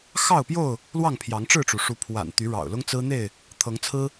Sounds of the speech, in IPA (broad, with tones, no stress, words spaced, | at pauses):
xɑ˥˨ʊ̯pjo˥˨ʊ̯ | lwɑ˥˨ŋpʰjɑ˨˦ŋʈ͡ʂɻ̩˥˨ʈ͡ʂu˩ ʂu˨˦pʰwa̰˨˩nt̪y˨˦ ɻɑ̰˨˩ʊ̯lʊ˦ŋt͡sɹ̩˦n̪e˥˨ɪ̯ | t̪ʰɤ˨˦ŋt͡sʰɹ̩˦